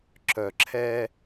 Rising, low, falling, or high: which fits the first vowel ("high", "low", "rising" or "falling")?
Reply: low